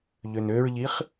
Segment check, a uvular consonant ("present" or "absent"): present